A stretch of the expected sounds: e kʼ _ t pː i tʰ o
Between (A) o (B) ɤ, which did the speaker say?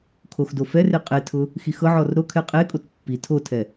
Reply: A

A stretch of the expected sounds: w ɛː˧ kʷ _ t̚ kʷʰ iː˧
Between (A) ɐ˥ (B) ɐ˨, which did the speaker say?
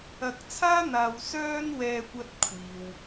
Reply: A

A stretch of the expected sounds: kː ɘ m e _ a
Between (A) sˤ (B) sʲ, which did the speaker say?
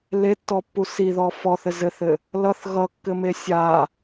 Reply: B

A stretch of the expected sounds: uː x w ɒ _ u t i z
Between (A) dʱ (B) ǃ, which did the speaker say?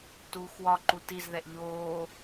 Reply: B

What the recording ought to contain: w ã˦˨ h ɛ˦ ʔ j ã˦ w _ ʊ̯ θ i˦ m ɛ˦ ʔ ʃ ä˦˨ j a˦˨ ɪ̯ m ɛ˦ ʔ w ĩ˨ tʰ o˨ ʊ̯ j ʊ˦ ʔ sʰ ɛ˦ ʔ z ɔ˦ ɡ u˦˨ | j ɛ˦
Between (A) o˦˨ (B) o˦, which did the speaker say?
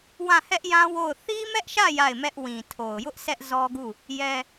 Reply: A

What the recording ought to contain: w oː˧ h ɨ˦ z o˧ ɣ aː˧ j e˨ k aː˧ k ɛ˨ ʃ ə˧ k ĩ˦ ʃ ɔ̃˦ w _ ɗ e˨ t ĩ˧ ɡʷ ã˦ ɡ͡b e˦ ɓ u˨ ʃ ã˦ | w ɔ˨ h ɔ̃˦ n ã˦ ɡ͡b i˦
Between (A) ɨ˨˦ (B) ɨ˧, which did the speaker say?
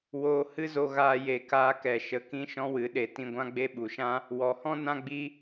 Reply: A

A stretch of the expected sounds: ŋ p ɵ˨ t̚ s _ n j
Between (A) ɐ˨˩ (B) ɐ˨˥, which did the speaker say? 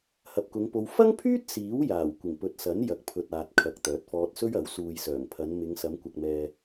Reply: B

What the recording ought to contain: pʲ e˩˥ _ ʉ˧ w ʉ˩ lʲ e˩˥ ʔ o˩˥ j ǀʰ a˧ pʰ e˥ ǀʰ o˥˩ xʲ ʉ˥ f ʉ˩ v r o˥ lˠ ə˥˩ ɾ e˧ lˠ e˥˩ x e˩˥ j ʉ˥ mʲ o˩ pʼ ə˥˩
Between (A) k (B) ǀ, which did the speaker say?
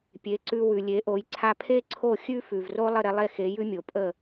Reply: B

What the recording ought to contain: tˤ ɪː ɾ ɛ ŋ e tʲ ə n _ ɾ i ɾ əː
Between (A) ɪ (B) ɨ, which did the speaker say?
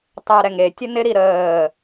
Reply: A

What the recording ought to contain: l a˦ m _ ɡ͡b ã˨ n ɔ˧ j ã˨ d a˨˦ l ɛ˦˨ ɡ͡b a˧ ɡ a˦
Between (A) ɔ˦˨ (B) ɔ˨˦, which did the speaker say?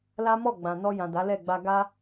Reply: A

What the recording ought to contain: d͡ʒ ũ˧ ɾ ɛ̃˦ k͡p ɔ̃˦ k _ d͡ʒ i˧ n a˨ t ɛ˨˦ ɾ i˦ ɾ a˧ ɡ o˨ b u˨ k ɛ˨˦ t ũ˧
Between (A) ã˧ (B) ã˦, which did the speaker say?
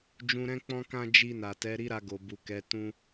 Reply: B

